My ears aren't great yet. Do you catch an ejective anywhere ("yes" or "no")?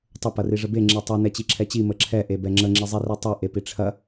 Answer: no